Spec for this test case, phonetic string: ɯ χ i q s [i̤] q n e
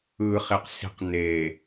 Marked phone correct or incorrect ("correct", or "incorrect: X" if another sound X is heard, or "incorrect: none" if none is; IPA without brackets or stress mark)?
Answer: correct